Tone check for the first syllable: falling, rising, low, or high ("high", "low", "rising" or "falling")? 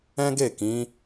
high